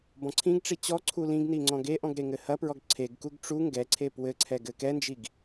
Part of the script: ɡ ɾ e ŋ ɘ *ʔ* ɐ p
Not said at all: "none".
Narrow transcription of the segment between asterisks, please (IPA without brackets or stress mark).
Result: h